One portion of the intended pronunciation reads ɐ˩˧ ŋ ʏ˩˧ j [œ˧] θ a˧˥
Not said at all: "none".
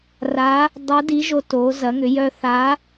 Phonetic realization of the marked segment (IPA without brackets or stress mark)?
œ˧